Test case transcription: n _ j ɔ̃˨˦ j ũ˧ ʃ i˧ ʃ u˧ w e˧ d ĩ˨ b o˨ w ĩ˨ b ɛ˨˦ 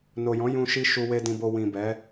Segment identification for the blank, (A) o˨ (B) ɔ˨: A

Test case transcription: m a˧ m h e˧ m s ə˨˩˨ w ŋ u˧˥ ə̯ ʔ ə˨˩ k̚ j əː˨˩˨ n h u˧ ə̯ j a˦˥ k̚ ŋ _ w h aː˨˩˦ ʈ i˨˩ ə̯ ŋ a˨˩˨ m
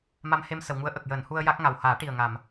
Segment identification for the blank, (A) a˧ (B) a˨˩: B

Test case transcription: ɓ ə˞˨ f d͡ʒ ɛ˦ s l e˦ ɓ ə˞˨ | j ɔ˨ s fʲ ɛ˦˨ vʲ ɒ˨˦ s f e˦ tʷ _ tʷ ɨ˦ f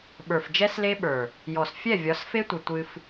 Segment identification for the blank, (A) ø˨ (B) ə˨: B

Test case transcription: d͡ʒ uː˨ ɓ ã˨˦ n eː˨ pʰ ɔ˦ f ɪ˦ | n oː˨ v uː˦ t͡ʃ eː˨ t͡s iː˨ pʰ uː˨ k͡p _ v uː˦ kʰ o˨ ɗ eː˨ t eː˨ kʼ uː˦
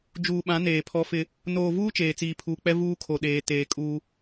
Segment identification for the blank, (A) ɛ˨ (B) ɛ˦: B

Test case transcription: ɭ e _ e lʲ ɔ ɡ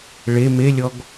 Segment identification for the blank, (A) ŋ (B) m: B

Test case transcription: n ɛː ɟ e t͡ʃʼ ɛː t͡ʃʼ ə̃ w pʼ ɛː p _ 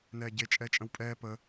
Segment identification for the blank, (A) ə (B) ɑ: A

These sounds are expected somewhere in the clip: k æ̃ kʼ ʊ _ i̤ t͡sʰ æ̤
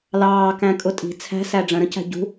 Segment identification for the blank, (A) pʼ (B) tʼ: B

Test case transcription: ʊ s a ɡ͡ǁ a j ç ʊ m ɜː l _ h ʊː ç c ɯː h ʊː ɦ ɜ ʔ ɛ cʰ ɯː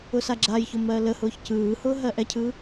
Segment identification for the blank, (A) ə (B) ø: A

